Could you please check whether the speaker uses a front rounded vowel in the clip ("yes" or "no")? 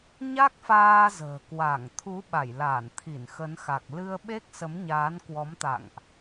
no